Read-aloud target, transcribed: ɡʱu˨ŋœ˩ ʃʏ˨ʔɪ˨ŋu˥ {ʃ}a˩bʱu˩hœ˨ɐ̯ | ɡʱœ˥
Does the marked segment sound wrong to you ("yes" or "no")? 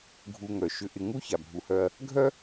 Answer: yes